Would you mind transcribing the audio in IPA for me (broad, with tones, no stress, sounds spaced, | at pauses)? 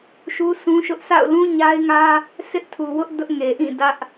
ʃ u˦ s ũ˦ ʃ ʊ˦ ʔ s a̰˦˨ ʊ̯ l ũ˦ ɲ a˦ ɪ̯ ŋ ä˦ | sʰ ɪ˦ ʔ tʰ u˨ w ʊ˦ ʔ d ʊ˦ ʔ ŋ e˨ ʔ ĩ˦˨ d ä˦ ʔ